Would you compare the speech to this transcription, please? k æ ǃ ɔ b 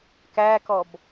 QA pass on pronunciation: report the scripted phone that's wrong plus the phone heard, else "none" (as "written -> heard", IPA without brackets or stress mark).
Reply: ǃ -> k